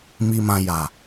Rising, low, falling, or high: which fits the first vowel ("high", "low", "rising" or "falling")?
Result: low